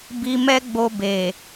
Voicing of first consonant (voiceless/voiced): voiced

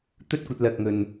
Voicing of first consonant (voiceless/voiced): voiceless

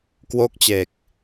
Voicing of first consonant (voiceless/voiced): voiceless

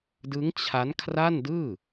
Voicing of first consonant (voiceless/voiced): voiced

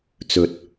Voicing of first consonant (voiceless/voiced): voiceless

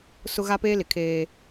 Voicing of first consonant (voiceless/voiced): voiceless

